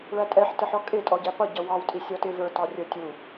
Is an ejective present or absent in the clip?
present